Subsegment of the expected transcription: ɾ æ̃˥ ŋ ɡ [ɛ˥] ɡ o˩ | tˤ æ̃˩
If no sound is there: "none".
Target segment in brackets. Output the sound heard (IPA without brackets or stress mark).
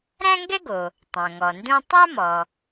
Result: ɛ˥